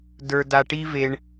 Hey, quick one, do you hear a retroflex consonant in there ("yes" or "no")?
yes